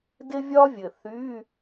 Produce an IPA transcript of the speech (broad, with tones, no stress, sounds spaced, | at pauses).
d ɪ˥ vʲ ɒ˥ vʲ ɘ˨˩ θ y˧˥˧